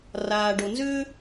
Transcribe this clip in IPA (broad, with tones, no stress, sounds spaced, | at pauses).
r aː˨ ɖ o˨ n z ʏː˥